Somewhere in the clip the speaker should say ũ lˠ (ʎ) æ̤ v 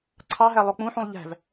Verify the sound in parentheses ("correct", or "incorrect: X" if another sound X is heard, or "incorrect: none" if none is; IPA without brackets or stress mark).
correct